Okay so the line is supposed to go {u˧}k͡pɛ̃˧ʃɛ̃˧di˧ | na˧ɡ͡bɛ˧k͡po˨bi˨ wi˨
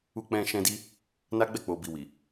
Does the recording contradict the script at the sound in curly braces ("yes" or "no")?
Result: no